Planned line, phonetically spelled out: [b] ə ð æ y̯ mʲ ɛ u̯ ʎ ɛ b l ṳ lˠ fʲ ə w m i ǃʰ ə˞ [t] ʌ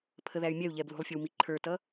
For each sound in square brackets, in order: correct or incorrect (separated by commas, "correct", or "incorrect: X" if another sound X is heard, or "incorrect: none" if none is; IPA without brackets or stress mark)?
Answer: incorrect: pʰ, correct